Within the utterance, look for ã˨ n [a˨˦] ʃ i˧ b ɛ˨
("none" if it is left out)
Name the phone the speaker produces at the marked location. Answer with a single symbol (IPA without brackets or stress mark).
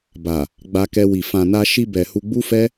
a˧